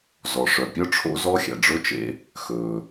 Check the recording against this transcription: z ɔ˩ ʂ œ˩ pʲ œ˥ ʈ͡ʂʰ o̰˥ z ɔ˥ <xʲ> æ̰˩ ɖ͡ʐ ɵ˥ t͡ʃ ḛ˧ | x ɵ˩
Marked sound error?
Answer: no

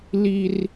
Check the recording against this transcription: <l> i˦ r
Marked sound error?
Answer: no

